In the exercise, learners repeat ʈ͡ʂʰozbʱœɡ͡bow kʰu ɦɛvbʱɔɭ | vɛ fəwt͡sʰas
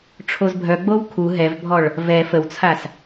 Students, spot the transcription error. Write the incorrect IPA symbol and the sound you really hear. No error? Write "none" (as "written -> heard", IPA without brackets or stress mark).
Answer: none